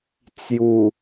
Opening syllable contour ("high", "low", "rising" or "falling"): low